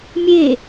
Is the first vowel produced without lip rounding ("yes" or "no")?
yes